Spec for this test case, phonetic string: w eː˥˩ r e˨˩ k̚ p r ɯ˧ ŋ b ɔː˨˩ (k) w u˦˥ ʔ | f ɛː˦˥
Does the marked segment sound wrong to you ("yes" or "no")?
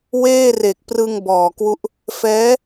no